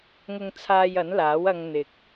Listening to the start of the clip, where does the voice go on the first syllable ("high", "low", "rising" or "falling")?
high